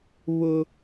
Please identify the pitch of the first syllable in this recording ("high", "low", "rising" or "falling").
high